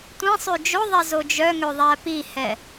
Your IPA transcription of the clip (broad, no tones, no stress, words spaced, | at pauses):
tʷĩsˤʉ d͡ʒoðˤɛzo d͡ʒœŋøðˤæ pihɛ